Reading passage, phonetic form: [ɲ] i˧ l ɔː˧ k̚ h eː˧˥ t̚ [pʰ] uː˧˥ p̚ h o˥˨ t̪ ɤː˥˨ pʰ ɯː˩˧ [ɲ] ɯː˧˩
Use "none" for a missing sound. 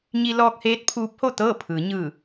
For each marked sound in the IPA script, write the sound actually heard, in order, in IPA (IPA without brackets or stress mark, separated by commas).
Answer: ɲ, pʰ, ɲ